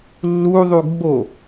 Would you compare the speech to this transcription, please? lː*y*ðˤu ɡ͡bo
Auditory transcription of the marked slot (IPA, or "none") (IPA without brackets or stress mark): u